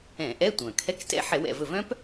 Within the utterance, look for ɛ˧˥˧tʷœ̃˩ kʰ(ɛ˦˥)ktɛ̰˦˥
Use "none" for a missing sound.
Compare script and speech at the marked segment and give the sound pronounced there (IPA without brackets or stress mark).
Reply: ɛ˧˥˧